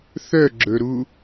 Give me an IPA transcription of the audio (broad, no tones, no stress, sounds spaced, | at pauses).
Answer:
θ œ ɡ͡ǁ ɵ ɾ u